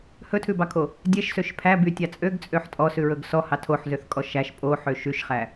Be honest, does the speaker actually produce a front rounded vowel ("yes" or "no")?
yes